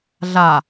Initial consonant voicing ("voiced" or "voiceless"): voiced